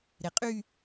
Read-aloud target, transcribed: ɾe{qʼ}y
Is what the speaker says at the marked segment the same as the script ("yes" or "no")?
yes